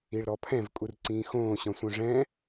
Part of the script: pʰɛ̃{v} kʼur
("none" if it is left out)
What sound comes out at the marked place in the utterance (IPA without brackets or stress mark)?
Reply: v